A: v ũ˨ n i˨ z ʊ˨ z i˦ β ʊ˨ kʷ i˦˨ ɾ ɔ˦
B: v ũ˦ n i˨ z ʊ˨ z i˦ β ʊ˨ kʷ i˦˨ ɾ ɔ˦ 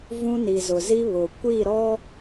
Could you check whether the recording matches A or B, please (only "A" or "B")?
B